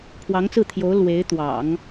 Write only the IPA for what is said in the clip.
pʰwɑ˧˥ŋt͡sɹ̩˥˩t̪ʰjo˧˥ʊ̯ lwe˧˥ɪ̯t̪wɑ̰˨˩˦ŋ

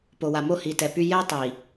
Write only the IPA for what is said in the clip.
po˨wa˨ mo˦hi˨ tɛ˨py˦ jɛ˦tˤi˨

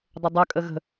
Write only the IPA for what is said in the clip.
dˤʏdˤœ kʼəɣə̤

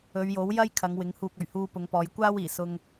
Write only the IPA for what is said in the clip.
ɵ˨˧ɥjo˨˥w jɐ˥jkʰɐ˨˧ŋ wɪ˨˥ŋhuː˧k̚ ɵ˨˩ɥhuː˧ pʊ˨˧ŋpɔː˨˧jkʷaː˥w iː˨˩ sʊ˧ŋ

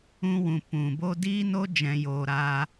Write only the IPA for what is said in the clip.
ũ˧wũ˨ pũ˨bo˦ diː˦no˦ d͡ʒɛ̃˨joː˨ ɾaː˧

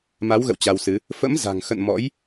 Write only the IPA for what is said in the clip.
ma˨˦wɣə̰˧˨w t͡ɕa˧wsɨ˨˦ | fə̰˧˥mza̤˨˩ŋxə̰˧˨n mɔ̰˧˥j

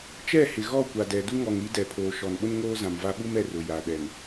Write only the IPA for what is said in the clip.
t͡ʃɛ˦˨hɪ˨ɣɔ˦˨ kʷa˨dɛ˨ du˦ŋɔ˨ŋɾi˦ dɛ˨pʰoː˨ʃɔ˨nɓʊ˦n ŋoː˦zã˨mva˦ ɓu˦mɛ˨ rʊ˨ja˨ ɗɛ˨n

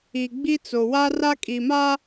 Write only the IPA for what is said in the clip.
i˨ɡ͡bi˦t͡so˨ wa˦ra˦kʼi˨ma˦

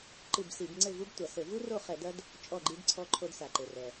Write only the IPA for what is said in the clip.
ǃɨ˦˨bsi˧˩˧b ŋ͡ǀɘ˦˨ vu˦btʷa˩ sɘ˧˩˧vu˦ro˦˨ χɛ˧˩˧dɐ˦d | t͡ʃʼɔ˦˨ɡ͡ǃi˦d ǀʰɔ˦ǃʰo˦dsa˩ ǃe˩rɛ˩

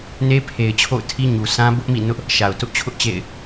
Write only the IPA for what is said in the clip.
ne˦pʰe˨ɪ̯t͡ɕʰo̰˦˨ʊ̯ tʰi˦ ɲu˨sʰã˦ bʊ˦ʔmḭ˦˨ nʊ˦ʔ | ʃa˨ʊ̯tʊ˦ʔt͡ɕʰʊ˦ʔt͡ɕḛ˦˨ɪ̯

